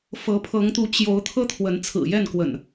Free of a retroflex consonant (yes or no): yes